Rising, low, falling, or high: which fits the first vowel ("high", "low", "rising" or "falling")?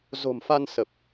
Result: low